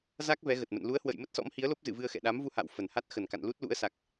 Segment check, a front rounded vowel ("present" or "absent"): absent